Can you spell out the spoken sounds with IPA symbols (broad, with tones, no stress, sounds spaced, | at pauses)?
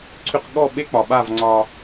ǀʰ y˧ q ɠ ɔ˦˨ ɓ e˦ k͡p ɒ˨ ɓ a˦˨ v ŋ͡ǀ ɒ˧